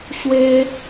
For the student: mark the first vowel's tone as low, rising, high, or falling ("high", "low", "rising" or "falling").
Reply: high